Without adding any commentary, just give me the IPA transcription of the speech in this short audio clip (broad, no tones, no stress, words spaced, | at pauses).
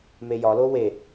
mejɒ lowe